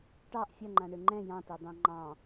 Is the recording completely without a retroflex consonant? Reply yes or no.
no